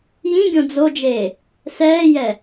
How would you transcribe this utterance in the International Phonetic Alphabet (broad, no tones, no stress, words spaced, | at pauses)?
jĩɡʲõ d͡zod͡ʒeː | sɛːjɛ